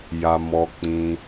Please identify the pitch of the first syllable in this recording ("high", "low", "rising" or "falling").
low